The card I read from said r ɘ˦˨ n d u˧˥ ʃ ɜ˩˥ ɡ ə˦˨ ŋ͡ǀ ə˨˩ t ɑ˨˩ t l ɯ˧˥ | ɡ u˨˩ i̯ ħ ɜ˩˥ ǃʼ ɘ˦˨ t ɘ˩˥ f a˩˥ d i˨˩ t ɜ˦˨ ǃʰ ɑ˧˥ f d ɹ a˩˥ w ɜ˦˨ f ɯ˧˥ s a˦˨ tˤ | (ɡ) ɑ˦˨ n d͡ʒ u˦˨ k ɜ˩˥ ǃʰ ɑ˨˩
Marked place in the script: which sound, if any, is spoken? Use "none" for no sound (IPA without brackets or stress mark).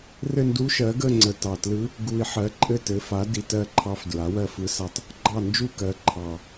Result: ɡ͡ǃ